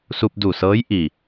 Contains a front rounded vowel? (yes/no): no